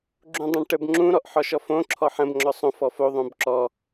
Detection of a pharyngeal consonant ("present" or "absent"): present